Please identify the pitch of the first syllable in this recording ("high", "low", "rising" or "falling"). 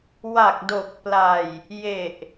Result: low